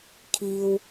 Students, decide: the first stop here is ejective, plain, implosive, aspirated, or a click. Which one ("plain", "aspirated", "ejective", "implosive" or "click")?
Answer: aspirated